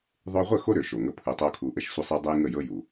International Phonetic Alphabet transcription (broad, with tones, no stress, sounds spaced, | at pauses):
ðˤ ø˧ ʁʷ ə˦˨ x o˦ ɾ ø˨˦ ʃ o˨ ŋ ə˦ pʰ ɯ˨ tˤ o˧ kʰ u˨ ʔ ə˦˨ ʃ sʷ ə˦ sˤ ø˦ dˤ ə˦ j ŋ ə˦˨ j ɤ˦ j u˨